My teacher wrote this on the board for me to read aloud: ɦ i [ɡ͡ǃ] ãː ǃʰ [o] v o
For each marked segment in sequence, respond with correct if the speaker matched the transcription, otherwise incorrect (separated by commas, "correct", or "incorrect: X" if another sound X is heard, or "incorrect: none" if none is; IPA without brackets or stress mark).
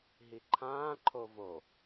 incorrect: ǃʰ, correct